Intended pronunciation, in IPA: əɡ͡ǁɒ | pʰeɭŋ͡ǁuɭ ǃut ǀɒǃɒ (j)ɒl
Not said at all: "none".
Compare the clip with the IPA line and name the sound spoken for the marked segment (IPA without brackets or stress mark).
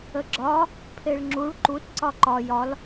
j